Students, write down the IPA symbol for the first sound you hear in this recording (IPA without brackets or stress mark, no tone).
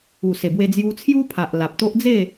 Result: u